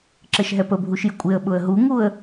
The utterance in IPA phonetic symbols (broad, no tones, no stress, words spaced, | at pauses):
ǁɘʃɦɛpəbʱuʃ jəkʷʼɪə̯ɓʊə̯ ɦuŋuə̯